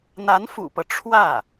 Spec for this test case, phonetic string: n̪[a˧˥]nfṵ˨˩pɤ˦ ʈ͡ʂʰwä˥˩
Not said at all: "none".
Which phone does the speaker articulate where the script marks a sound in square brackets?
a˧˥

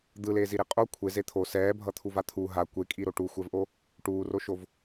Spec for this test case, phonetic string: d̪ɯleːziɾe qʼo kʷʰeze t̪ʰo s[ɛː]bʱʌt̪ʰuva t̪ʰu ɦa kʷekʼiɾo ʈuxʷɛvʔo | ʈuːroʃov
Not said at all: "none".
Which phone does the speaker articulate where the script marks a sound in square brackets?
ɛː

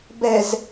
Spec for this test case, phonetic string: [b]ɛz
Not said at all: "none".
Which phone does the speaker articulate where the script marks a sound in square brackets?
b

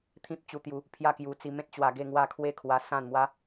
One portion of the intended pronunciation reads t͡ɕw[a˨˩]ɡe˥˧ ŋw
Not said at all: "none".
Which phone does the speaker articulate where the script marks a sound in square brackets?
a˧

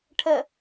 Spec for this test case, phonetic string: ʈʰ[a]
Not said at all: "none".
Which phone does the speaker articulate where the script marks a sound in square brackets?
ə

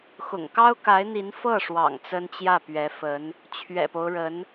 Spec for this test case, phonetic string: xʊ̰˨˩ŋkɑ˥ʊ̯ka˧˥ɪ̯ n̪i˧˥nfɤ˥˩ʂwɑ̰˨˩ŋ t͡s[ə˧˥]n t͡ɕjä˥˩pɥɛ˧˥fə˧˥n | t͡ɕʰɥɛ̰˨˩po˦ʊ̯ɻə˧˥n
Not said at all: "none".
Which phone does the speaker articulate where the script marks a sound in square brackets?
ə˥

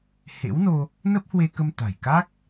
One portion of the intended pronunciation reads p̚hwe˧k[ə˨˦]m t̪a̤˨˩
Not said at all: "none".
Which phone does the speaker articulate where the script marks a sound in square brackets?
ə˧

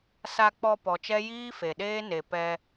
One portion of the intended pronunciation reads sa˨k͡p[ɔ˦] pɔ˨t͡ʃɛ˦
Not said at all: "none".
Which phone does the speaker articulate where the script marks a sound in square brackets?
ɔ˨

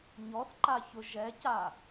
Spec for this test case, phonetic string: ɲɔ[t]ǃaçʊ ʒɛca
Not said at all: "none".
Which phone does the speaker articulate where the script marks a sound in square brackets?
θ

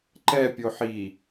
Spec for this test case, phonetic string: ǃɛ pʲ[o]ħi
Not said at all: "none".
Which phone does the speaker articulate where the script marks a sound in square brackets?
o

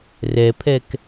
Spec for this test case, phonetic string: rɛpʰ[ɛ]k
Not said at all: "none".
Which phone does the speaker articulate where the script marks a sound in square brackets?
ɛ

